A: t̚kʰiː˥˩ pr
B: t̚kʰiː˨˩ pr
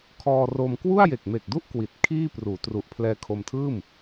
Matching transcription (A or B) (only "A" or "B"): A